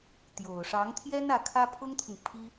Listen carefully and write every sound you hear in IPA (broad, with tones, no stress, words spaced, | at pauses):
t̪jo˨˩ʊ̯ʂɑ˧˥ŋt̪ʰjɛ˥n ä˧˥kʰä˥pʰʊ˥ŋt̪ʰʊ˨ŋ pʰi˥